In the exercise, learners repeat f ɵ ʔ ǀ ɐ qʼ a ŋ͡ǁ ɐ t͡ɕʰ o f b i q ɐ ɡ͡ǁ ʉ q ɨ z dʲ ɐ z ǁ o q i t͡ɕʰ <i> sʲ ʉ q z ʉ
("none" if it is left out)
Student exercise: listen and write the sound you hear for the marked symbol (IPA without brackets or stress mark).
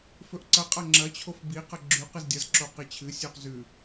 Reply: ɨ